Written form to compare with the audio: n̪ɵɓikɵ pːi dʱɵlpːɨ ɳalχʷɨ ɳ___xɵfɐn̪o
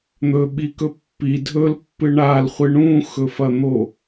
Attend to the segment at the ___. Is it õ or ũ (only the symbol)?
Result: ũ